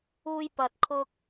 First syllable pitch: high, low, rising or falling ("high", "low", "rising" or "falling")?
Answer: high